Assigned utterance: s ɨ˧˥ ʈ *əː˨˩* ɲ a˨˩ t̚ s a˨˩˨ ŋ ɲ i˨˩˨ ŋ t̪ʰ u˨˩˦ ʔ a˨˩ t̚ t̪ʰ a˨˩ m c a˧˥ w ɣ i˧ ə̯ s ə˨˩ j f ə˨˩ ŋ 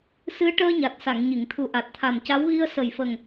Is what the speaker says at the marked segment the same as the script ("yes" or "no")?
no